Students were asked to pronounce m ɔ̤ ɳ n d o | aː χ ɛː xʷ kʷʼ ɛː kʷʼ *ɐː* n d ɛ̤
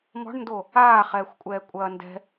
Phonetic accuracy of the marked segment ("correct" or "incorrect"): correct